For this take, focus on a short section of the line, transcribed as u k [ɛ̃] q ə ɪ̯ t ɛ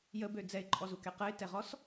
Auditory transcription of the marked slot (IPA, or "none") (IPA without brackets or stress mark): ɛ